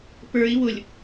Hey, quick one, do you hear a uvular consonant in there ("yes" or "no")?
no